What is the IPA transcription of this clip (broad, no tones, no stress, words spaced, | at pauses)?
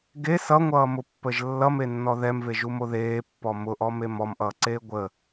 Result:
ɡe sʌŋʷʌːmʊpːəʒ lːʌmenːɔ ðɛmveʒumo ðeːpːɔ mʊʔɔme mɔmʔʌːǀeː ɡʷə